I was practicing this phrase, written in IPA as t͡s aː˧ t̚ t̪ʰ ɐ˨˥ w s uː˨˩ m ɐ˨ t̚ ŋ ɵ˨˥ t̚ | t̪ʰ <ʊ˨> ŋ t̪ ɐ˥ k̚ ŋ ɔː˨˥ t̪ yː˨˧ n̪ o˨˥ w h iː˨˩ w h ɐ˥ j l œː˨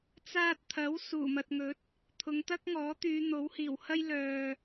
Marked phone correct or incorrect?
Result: incorrect